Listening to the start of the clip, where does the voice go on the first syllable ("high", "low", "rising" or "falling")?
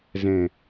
low